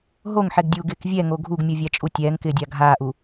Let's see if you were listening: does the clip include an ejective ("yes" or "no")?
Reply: yes